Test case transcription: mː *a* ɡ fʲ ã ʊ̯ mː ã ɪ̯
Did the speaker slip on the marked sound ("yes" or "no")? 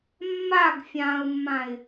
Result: no